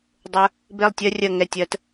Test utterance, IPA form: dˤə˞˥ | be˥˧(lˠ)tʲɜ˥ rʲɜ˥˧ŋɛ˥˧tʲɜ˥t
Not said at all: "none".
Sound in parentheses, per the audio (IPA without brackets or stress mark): lˠ